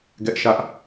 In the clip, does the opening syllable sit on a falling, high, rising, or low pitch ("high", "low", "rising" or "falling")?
high